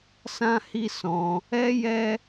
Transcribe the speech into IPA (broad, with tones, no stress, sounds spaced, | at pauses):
s ã˦ h i˦ s ɔ̃˧ | ɛ˦ j ɛ˦